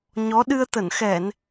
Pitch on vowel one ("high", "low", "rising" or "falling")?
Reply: rising